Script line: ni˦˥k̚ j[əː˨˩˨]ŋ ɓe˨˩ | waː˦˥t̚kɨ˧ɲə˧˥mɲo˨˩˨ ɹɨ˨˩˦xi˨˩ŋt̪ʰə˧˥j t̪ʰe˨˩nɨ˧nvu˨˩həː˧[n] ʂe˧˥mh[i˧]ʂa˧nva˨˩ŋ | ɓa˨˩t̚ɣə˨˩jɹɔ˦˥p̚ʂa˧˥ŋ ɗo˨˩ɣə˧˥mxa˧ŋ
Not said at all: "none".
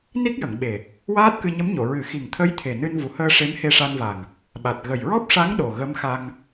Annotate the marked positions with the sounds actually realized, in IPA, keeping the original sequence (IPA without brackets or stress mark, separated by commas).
ə˨˩˨, none, e˧